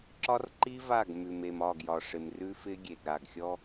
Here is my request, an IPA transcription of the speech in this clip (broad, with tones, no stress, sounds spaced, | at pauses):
ǁ ɒ˦ r ǃ i˦ v a˦˨ ɡ m ʉ˨ m e˨ m ɒ˦˨ ɡ j ɒ˨ ʂ ɪ˨ m r ʉ˦ f ɪ˦ ɡʲ e˨ ɡ ɾ a˨ ɡ xʲ ɔ˦